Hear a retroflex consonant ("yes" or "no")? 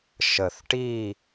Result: yes